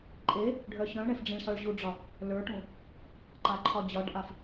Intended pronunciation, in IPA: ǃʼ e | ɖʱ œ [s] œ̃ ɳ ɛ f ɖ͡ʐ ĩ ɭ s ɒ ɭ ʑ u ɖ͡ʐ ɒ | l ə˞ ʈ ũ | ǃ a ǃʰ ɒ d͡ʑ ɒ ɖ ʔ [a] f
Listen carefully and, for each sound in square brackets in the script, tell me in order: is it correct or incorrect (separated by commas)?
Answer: incorrect, correct